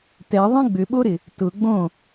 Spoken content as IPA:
t ɛ ðˤ ẽ ɡ͡b ʏ ɓ o ɾ ɪ | t ʊ ɡ͡b õ

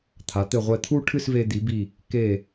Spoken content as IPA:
t̪ʰ a˩˧ t̪ ɘ˧˩ ʁʷ ɛ˧˩ t̪ʰ u˥˧ ʈʰ ɨ˥˧ s v e˧ d̪ i˩˧ b i˧˩ | k e˧˩

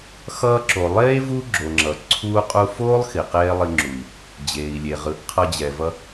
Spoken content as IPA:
x ʌː˧ ǁ o˨ lˠ eː˦ v u˦ ɡ͡ǁ o˨ ŋ͡ǁ ʌː˨ ǀʰ u˦ qʼ u˧ f oː˦ lˠ x i˨ q eː˦ lˠ i˧ ŋ͡ǁ u˨ i̯ | d͡ʑ eː˨ i̯ lʲ e˨ ʁ ɯ˨˦ ʔ qʰ ʌ˧ d͡ʑ ɛ˨ v ʌ˧

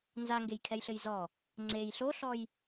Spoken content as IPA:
n z a ŋ ɡ e j kʰ ɛ j ɬ ɘ j z ɔ | ŋ͡ǀ e j ɬ o ɬ ɔ j

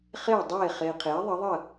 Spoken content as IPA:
χ e˥˩ dˤ eː˥˩ χ eː˨ qʰ eː˩˥ ðˤ ə˩˥ ðˤ ə˥˩

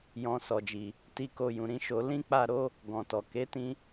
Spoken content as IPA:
j ɔ̃˧ s ɔ˨ d͡ʒ i˨ | t i˧ k o˧ j ũ˨ ɾ ĩ˧ ʃ o˧ l ĩ˦ k͡p a˦˨ ɾ o˨˦ | ɡ ɔ̃˨ t ɔ˨ k e˨˦ t ĩ˧

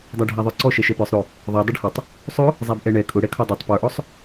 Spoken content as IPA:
dˤ æ ɖʱ æ ðˤ ə˞ ǀ ɔ ʃ ɛ ʃ ɛ p ə˞ sˤ ɾ ʊ | ðˤ ɛ dˤ ɪ ɖ h ʊ tˤ | sˤ ʊ | zˤ æ b ʔ ɛ ɳ ɛ kʼ ʊ ɽ ɛ kʰ ɔ dˤ ɛ tˤ p ə˞ ʔ ɔ sˤ

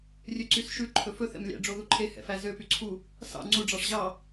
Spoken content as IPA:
rʲ ø ǀ y s ʃ ʉ ǃʰ ɵ f ɵ θ ɛ̰ m lʲ æ̰ ɖ͡ʐ o ð u ǃʰ e h ɛ̰ f æ z ø p y ǀʰ u | s ɑ̰ ŋ͡ǀ u ɖ͡ʐ ɑ ʂ ʑ ɑ

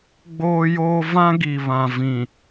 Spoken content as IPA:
ɡ͡b oː˦ j oː˦ v ã˦ ɡ i˨ β ã˨ v ĩ˨

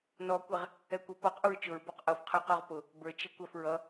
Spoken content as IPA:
n ɔ kʷ ɛ ʁ | ɛ kʷ ʌ p ɔ q ʔ u ɹ t͡ʃ ʊ ɹ b ɔ q ʔ ʌ f qʰ ə˞ q ɔ ʁ p ʊ | b ə˞ t͡ʃ ɪ kʷ æ f ɹ ʌ

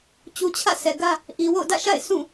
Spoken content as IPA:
t͡ɕ u˨ t͡ɕʰ ä̰˦˨ s ɛ˨ ɡ ä˦ | ʔ i˨ w o̰˦˨ ʊ̯ d ä̰˦˨ ʃ a̰˦˨ ɪ̯ sʰ ũ˦˨

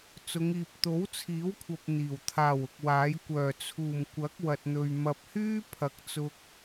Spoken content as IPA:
t͡s ʊ˨˧ ŋ iː˨ p̚ t̪ o˨˥ w t͡sʰ iː˨˥ w kʷʰ ɐ˨ p̚ n̪ iː˨˩ w t̪ʰ aː˨˩ w ʊ˨ k̚ w aː˨˥ j kʷ œː˨˩ t͡sʰ uː˨˩ m kʷ ɐ˨˥ k̚ w ɐ˨ t̚ n̪ ɵ˨ ɥ m ɐ˨ p̚ h yː˥ pʰ ɐ˨ k̚ t͡s ʊ˧ k̚

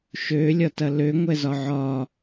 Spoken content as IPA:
ʃ ø lʲ ɒ t ɐ l ø ŋʷ ɛ z ɒ ʕ ɒ

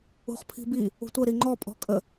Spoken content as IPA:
ṳ χ pʰ i̤ b i | ṳ tʷ ə ɾ i ŋ͡ǃ ɔ pʼ ɔ̤ kʼ ə

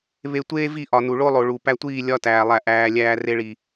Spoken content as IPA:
β e˧ tʷ eː˦ v i˦˨ ʔ ɒ˨ n u˨ ɭ o˦ lˠ o˨ ɭ u˨ p æ˧ tʷ iː˦˨ lʲ ɒ˦ t æː˧ lˠ æ˦˨ ʔ æː˧ lʲ æː˧ r e˧ ɭ i˨

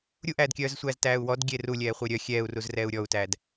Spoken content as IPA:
ɾʲ u ʔ æː d kʲ œː z sʷ æː z t æː u̯ w ɔ d ɡʲ e r u lʲ ɛː χʷ e ɾʲ œ xʲ ɛː u̯ r u z r ɛː u̯ ɾʲ ɔ u̯ t æː d

